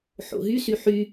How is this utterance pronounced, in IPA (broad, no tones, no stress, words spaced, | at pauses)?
ħo̰ɦysy ħy